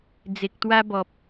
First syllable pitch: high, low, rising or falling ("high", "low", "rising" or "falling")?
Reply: low